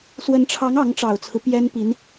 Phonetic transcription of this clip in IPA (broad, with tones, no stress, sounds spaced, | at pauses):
s w ə˧˥ n ʈ͡ʂʰ ɑ˧˥ ŋ ɑ˧˥ ŋ ʈ͡ʂ ɑ˨˩ ʊ̯ t͡sʰ ɹ̩˦ p j ɛ˥ n p i˧˥ n